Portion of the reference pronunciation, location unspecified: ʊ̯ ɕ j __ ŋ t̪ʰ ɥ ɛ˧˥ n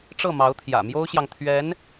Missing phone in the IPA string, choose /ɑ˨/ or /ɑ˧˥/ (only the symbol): ɑ˨